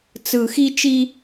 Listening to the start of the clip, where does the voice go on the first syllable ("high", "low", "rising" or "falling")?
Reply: low